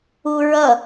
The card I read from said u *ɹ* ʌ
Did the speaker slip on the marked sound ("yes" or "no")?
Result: no